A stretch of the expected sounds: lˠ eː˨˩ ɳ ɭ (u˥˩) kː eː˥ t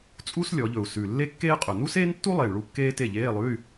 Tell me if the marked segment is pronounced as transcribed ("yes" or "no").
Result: yes